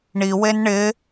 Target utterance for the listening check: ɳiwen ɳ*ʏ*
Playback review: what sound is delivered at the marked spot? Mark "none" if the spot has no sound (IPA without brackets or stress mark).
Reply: ɪ